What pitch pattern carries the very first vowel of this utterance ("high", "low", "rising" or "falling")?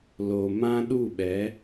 low